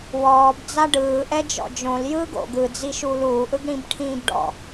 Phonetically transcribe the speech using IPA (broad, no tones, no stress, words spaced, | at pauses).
wɔːb d͡zaɖɯːʔɛ d͡ʒɔ̰d͡ʒõl jɯːɡo̰ɡ ɯd͡zi ʃuːluːʔɯɡ ɽĩbʈʰĩːbɖɔ̰